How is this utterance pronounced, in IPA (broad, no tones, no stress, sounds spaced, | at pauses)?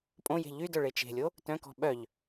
pʼ õ j e̤ ʎ y d œ ɭ e t͡ʃ e̤ lʲ o | t œ̃ k ɔ̤ ɓ œ ʎ